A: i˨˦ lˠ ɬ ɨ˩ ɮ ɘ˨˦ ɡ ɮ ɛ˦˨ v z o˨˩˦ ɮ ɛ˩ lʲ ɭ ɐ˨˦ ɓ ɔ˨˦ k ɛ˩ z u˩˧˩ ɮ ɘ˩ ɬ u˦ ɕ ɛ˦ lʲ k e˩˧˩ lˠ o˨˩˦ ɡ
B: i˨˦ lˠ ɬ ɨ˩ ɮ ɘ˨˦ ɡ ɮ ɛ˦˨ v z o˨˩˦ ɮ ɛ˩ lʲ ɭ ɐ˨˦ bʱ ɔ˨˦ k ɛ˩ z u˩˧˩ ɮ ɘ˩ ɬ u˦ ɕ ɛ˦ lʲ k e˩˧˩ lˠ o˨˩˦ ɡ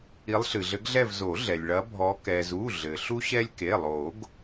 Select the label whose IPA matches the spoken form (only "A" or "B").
B